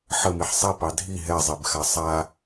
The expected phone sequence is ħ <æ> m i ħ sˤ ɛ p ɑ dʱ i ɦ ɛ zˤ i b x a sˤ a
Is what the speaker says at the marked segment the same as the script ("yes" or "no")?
no